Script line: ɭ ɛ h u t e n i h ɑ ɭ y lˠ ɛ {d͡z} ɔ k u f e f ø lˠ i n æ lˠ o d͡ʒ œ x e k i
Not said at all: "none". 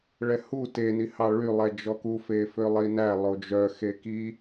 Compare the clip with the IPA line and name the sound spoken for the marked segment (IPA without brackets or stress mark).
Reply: d͡ʒ